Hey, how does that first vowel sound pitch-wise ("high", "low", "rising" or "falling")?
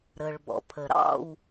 low